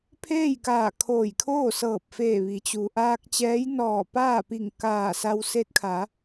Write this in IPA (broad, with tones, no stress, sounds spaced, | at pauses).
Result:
pʰ eː˥˨ j k aː˧˩ kʰ oː˧˩ j kʰ oː˥˨ s ɤː˧˩ p̚ f eː˧˩ ʋ i˩˧ t͡ɕ u˩ ʔ aː˧ k̚ t͡ɕ ɛː˧˥ j n ɔː˧˩ p aː˥˨ p i˧˩ ŋ k aː˧˩ s a˧ w s e˧˥ t̚ kʰ a˩˧